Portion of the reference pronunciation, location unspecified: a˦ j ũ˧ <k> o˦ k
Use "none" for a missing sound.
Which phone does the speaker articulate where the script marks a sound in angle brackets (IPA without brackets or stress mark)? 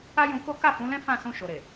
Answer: k